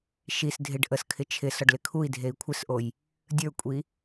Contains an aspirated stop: yes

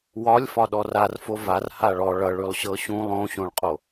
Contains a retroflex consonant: yes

